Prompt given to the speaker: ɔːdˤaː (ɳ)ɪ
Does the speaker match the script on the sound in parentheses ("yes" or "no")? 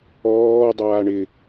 yes